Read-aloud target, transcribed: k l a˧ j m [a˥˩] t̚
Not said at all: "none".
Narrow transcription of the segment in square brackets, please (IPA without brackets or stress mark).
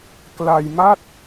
a˥˩